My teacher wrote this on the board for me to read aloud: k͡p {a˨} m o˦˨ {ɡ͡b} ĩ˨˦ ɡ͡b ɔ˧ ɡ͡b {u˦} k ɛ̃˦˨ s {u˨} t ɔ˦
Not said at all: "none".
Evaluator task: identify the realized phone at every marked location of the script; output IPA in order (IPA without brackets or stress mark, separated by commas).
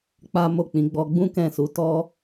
a˦, k͡p, ũ˦, u˨˦